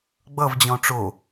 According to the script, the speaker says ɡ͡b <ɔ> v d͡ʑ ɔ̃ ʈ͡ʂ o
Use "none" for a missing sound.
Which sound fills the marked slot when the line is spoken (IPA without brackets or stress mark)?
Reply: ʌ